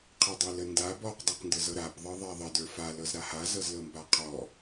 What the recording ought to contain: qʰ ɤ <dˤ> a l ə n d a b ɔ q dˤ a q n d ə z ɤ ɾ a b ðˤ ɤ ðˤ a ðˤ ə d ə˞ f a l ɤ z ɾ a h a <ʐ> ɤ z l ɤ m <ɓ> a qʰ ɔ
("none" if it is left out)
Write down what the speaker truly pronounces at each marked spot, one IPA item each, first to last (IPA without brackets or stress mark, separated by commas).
dˤ, z, b